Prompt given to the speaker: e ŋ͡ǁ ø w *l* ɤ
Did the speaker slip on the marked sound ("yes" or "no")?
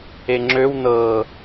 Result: yes